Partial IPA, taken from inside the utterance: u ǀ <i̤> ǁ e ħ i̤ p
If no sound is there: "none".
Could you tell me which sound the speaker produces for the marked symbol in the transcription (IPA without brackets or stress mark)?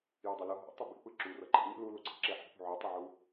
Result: i̤